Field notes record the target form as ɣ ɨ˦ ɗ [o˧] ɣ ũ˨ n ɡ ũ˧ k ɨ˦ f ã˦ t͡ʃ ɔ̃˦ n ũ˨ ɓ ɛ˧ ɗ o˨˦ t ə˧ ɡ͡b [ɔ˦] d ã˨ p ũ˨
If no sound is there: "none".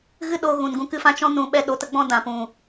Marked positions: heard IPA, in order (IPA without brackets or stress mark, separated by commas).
o˧, ɔ̃˦